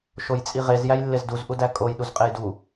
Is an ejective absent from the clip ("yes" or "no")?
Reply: no